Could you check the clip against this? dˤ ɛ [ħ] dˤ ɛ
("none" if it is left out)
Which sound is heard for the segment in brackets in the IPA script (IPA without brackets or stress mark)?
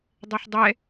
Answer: ħ